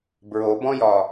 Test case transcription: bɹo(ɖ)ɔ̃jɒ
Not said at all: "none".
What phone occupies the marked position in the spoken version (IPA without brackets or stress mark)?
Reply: b